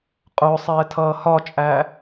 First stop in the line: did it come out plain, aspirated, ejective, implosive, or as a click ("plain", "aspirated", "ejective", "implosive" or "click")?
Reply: ejective